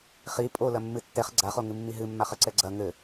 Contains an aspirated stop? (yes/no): no